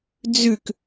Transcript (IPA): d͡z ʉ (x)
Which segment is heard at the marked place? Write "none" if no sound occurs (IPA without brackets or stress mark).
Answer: k